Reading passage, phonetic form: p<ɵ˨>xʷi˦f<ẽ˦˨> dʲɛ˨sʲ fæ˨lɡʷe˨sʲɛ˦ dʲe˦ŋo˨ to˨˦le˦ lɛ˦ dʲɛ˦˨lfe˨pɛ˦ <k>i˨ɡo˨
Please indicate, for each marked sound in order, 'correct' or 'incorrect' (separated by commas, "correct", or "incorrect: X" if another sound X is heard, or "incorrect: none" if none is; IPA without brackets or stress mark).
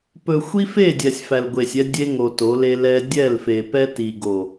correct, incorrect: e˦˨, incorrect: t